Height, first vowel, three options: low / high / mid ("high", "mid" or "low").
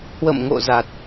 mid